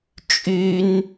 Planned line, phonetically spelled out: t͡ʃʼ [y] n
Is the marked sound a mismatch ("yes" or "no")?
no